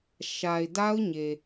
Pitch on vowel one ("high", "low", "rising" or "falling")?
low